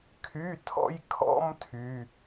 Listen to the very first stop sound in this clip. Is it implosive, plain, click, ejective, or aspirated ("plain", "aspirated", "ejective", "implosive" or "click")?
aspirated